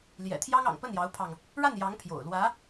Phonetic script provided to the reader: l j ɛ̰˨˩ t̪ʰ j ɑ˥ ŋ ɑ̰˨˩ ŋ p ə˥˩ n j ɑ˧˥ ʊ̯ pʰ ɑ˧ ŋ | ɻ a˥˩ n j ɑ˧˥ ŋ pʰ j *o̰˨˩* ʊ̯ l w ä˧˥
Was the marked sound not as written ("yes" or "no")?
no